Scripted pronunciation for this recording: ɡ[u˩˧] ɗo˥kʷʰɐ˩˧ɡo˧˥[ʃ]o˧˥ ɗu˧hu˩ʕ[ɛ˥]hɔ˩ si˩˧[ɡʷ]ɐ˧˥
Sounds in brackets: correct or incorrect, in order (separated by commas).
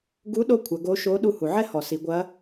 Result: incorrect, correct, correct, correct